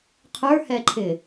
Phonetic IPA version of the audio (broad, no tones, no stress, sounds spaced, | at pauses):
qʰ ə˞ h ɛ ǃʰ ɪ